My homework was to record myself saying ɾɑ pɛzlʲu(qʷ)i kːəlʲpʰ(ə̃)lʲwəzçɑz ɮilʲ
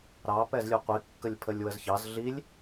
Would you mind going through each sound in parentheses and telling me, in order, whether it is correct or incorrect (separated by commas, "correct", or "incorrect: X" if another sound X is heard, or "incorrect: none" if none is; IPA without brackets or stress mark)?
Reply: correct, incorrect: ə